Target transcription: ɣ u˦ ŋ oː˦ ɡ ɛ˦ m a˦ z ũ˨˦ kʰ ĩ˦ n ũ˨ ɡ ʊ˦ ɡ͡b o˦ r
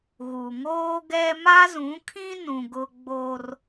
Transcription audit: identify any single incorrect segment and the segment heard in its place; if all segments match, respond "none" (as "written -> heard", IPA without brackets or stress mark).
u˦ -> u˨